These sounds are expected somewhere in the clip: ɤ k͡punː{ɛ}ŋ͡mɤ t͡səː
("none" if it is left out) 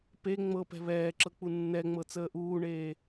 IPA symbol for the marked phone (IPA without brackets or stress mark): ɛ